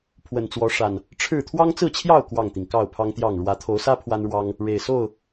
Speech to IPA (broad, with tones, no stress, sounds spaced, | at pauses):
pʰ w ə˨˩ n t͡s w ɔ˨˦ ʂ a˨˩ n | ʈ͡ʂʰ ɻ̩˥˨ t̪ʰ w ɑ˦ ŋ t͡s ɹ̩˥˨ t͡ɕʰ j ɑ˥˨ ʊ̯ k w ɑ˥˨ ŋ t̪ i˩ ŋ k ɑ˥˨ ʊ̯ pʰ ɑ˦ ŋ t̪ j ɑ˥˨ ŋ ɻ w ä˨˦ t̪ʰ o˨˦ ʊ̯ s ä˦ pʰ w a˦ n ɻ w ɑ˦ ŋ | ɻ e˨˩ ɪ̯ s o˥˨ ʊ̯